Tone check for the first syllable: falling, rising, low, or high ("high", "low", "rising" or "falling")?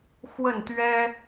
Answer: falling